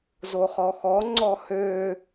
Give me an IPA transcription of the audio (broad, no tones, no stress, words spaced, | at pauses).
zoχɔxɔŋ͡ǀɔ hø